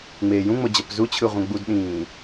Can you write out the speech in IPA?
ŋ͡meːjũŋ͡mo d͡ʑʌpzut͡ɕʰɯ ʁʷɛ̃ɡ͡budɗĩː

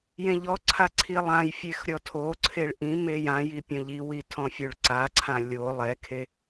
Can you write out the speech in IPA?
jẽʎɔǀʰa ǀʰilˠãjfʲex ɾʲɔtʰoǀʰeɭ ʔĩmej ãji pʲɔ̃ʎiwi tʰɔ̃fʲoɭǀaǀʰã lʲo lˠɛkʰe

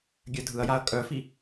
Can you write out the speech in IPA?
ɡʲœdʱɯɐ̯jaɐ̯ kʼœfi

